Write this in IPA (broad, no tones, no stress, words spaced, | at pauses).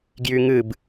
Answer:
ɡjyŋɨb